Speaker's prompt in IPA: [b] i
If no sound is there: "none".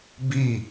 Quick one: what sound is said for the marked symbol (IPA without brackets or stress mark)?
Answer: b